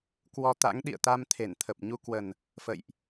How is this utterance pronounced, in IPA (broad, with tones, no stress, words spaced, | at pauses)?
kwɔ˧t̪a̰˧˥ŋ ɗḭ˧˨ə̯t̪a˧mt̪ʰe˧˩nt̪ʰə˨˩p̚ ɲu˧kwə˨˩n | fə̰˧˨jʔ